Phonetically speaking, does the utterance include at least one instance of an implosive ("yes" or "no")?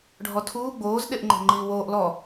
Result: yes